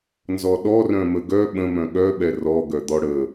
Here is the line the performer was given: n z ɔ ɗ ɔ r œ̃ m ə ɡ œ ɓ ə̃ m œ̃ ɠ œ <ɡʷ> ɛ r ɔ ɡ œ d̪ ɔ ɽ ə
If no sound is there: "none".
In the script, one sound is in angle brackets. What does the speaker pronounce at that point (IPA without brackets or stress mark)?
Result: ɓ